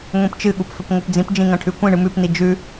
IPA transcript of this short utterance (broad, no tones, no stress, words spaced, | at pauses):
ŋʷĩpt͡ʃɨɠup fɵpŋʷɨpd͡zĩpd͡ʒĩ ŋɐ̃ʈʰʉkʷĩɳɨ mʉpni d͡ʒʉ